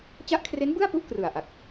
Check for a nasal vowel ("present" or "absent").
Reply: absent